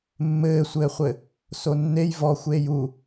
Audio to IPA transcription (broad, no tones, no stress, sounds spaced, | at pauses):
mː ɘː sʷ ɘː χʷ ɘ | s o nː e j v ɔ xʷ eː j u